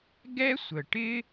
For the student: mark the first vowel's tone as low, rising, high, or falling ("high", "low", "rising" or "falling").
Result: high